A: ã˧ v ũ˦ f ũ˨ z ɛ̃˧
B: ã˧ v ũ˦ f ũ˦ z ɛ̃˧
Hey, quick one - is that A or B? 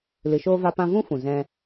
A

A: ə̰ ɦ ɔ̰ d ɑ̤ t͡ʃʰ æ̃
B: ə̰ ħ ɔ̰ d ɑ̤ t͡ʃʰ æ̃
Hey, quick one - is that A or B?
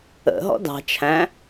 A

